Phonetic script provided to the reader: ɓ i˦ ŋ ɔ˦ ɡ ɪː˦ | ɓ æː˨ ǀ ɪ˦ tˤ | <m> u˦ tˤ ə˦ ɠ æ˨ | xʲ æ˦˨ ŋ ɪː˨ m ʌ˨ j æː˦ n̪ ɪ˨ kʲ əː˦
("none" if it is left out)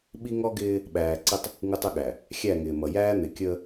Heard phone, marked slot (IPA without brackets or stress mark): ŋ